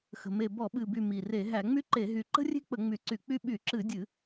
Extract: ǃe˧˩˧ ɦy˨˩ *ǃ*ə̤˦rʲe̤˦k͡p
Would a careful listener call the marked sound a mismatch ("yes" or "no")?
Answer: no